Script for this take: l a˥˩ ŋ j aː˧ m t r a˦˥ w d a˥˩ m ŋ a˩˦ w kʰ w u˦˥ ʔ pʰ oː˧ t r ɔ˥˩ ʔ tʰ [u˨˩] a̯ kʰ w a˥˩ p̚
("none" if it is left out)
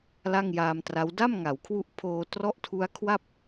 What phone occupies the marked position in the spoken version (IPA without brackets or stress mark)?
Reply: u˦˥